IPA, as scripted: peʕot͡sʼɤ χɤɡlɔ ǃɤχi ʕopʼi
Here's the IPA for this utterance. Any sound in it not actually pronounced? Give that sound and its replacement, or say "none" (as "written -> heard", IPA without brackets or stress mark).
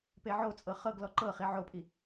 none